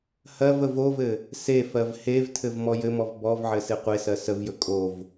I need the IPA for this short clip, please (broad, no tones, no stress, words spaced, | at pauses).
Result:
hɜvə vovɘ | se fɜvhevtʰɘv mɔjɘmɔv bɔvʕɘ seqʷesɜ səvjɵ kʼov